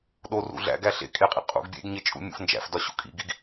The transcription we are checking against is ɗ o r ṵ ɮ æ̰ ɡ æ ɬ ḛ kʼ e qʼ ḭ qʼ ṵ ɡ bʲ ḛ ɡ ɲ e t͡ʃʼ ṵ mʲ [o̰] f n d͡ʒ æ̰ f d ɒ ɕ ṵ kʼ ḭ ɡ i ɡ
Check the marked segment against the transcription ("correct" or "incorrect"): incorrect